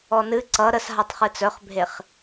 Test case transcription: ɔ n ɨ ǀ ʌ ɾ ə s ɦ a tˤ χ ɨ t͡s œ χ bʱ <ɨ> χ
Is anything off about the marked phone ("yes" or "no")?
yes